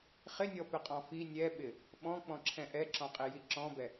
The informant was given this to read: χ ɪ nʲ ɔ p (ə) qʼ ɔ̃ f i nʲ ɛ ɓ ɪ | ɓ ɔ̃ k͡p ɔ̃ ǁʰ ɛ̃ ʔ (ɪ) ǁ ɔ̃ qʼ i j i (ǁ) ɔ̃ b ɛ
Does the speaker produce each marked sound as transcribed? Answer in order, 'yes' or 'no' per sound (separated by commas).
no, no, yes